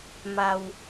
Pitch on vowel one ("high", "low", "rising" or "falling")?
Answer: low